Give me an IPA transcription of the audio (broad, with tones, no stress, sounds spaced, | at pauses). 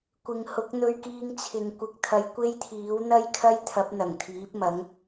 kʷ ɪ˨ ŋ h ʊ˨˥ k̚ n̪ ɵ˧ ɥ k iː˧ ŋ t͡sʰ ɪ˨ ŋ kʷ ɪ˨˥ k̚ t̪ʰ ɐ˨˧ j kʷ e˥ j t̪ʰ iː˨˥ w n̪ ɐ˥ j kʰ ɐ˥ j t̪ʰ ɐ˨˥ p̚ n̪ ɐ˨˩ ŋ t̪ʰ iː˨˥ p̚ m ɐ˨˥ ŋ